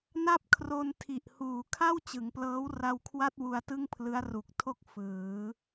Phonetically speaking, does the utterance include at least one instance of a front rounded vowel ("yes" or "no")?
no